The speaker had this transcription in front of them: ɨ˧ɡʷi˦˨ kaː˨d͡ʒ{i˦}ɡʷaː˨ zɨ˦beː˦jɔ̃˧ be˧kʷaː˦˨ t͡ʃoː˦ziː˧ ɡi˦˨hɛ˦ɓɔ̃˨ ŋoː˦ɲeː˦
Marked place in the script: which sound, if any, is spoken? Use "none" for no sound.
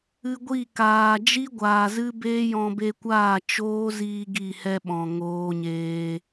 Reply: i˦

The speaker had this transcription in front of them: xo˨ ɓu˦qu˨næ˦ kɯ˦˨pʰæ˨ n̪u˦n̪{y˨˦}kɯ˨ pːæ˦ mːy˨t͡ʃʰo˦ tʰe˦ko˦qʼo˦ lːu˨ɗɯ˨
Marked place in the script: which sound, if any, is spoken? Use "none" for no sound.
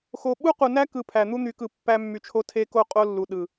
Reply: y˨˦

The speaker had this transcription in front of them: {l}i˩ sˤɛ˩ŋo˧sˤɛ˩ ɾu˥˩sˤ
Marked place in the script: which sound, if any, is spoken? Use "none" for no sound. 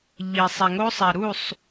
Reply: ʎ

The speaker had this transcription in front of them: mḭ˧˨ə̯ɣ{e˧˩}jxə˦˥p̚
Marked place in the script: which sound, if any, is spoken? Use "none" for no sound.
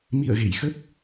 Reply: e˧˩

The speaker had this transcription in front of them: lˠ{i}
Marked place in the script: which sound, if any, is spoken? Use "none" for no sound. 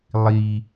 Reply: i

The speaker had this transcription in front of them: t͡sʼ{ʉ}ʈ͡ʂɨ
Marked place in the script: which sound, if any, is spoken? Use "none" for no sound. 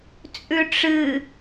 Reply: ʉ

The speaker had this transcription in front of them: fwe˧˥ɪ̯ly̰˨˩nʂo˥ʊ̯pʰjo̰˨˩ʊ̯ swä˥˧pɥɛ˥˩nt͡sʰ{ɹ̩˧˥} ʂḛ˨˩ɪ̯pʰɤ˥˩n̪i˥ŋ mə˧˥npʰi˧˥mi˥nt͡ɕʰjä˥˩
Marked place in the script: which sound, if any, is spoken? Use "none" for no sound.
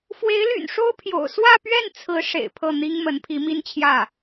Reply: ɹ̩˧˥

